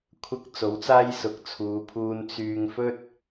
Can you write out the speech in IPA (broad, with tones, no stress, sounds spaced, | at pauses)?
kʷʰ ɐ˧ k̚ t͡s o˨˥ w t͡s aː˥ j s ʊ˨˥ k̚ t͡sʰ uː˨˧ pʰ uː˧ n t͡s yː˧ ŋ f ɵ˥ t̚